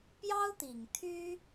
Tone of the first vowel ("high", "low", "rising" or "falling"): high